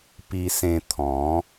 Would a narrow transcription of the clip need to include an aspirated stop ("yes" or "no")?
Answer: yes